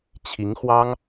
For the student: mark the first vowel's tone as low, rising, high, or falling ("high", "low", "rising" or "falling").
rising